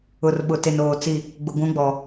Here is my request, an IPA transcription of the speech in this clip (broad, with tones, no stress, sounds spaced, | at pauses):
ʊ˨ r ɓ ʊ˨ t e˨ n oː˨ t͡s i˦˨ | ɡ͡b ʊ˨ ɡʷ ũ˨˦ ɡ͡b ɔ˨